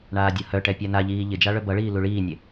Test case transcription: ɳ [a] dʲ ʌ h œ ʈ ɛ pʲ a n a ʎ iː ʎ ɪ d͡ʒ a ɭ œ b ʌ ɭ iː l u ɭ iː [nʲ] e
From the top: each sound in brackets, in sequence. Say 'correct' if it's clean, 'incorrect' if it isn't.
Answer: incorrect: aː, correct

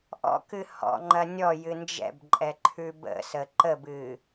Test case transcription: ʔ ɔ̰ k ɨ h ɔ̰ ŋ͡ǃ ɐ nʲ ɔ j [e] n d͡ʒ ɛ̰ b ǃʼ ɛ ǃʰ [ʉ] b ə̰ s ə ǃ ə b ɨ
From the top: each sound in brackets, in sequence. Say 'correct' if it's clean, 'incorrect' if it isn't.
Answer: incorrect: ɨ, correct

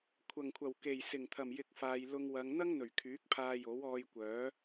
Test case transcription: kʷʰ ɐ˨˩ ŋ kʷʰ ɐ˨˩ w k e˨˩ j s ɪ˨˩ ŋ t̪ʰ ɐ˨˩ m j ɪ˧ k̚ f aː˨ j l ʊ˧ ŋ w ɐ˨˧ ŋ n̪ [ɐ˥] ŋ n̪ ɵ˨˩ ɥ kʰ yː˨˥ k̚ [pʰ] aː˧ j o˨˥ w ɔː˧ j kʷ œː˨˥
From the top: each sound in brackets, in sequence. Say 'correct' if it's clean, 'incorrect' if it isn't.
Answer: correct, correct

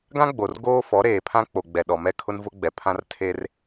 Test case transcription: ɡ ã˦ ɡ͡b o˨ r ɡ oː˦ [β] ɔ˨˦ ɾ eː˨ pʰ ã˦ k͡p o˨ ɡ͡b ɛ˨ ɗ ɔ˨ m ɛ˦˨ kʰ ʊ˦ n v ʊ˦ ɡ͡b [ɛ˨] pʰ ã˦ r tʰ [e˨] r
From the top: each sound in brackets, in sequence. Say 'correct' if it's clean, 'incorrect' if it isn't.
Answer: incorrect: f, correct, incorrect: e˦

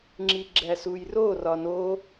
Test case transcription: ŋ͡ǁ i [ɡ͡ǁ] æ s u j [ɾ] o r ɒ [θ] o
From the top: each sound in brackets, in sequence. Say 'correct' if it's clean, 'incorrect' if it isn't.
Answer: correct, incorrect: r, incorrect: n

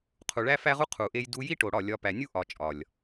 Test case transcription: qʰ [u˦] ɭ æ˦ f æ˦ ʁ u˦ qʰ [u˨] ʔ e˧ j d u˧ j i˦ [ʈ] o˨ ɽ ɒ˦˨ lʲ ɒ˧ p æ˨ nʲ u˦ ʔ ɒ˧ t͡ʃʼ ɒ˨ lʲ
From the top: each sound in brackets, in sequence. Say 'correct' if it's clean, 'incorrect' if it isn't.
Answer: incorrect: u˨, correct, correct

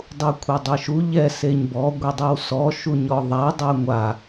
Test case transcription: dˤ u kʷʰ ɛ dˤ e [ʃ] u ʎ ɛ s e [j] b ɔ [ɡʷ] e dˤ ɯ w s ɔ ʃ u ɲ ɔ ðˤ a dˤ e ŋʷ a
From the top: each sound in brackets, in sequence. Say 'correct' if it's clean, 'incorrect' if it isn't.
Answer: correct, incorrect: ɲ, correct

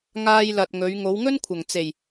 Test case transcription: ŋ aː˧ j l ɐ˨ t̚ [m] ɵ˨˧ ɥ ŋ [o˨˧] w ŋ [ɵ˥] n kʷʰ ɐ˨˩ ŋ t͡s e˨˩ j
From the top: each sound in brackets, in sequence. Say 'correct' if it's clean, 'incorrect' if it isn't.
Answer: incorrect: ŋ, correct, correct

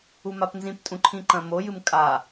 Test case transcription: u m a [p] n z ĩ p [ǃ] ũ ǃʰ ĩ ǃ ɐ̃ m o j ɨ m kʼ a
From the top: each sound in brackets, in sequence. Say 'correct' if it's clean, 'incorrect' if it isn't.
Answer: correct, incorrect: tʼ

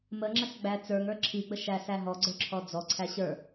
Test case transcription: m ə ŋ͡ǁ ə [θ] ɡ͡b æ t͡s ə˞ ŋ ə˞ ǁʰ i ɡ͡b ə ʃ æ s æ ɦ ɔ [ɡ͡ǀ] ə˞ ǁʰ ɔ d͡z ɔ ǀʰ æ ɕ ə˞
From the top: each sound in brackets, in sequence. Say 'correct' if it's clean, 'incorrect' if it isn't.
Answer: incorrect: s, correct

